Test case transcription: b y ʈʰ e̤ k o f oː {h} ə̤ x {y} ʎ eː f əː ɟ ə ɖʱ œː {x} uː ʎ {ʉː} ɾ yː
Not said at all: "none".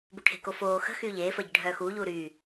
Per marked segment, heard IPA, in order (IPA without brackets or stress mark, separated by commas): x, yː, x, uː